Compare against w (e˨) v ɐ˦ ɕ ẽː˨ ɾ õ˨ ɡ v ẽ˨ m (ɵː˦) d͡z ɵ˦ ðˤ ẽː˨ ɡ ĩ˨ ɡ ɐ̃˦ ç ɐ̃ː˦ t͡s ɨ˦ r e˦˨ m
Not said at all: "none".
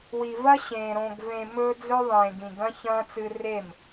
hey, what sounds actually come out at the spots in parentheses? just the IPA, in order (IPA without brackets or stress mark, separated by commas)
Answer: i˨, ɵː˦